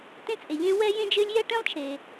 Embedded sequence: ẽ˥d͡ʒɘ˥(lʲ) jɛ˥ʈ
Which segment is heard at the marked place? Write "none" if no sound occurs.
lʲ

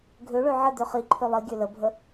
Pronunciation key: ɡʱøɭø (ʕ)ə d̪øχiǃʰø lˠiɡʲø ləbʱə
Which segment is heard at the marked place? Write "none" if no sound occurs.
ʕ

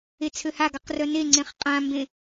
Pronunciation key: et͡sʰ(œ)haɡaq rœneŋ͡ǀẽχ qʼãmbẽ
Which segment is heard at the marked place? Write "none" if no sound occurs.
ø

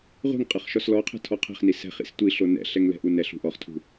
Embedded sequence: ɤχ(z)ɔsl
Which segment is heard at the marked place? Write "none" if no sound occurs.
ʃ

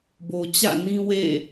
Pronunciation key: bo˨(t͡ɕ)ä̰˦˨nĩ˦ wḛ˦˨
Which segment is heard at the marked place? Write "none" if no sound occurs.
t͡ɕ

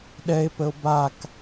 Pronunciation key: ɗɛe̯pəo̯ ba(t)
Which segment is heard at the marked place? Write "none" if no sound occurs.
k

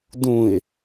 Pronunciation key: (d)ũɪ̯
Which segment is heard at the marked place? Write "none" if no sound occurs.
d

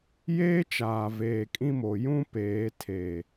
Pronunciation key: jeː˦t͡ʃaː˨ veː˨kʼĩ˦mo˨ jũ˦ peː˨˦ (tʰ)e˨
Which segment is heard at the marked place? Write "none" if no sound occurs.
tʰ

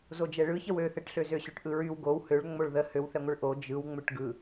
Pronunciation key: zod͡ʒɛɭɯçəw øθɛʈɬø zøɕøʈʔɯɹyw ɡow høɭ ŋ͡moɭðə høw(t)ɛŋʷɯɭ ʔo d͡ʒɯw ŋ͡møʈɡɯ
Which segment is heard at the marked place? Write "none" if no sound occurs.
θ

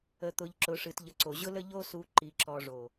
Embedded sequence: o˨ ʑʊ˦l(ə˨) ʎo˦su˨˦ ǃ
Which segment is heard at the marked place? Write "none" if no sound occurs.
ə˦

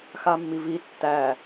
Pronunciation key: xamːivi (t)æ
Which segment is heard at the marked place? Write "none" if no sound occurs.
tː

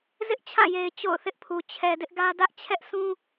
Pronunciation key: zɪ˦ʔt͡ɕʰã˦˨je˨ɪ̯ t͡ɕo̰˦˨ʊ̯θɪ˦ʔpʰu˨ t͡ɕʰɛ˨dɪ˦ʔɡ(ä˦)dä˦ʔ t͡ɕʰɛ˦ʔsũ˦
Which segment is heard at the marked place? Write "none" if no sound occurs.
ä˦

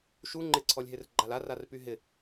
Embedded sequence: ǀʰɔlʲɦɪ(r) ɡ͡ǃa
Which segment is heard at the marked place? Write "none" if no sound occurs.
r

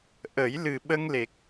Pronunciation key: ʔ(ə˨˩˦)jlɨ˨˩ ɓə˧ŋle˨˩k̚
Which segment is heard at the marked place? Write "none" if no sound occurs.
ə˨˩˦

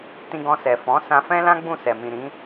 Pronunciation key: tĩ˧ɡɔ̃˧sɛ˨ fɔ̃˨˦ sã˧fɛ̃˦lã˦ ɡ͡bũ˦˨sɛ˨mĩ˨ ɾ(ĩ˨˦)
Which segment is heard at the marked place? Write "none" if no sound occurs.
ĩ˨˦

